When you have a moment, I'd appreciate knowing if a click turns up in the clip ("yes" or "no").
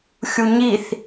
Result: no